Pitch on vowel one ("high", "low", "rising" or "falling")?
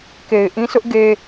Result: low